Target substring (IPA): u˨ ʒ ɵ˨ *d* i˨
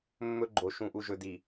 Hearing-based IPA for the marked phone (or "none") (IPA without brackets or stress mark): d